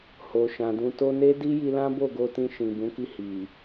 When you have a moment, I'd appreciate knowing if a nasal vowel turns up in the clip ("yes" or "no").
yes